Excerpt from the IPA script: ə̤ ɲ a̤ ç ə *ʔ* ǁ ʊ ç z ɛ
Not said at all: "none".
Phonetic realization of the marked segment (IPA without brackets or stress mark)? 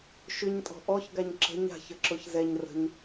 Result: none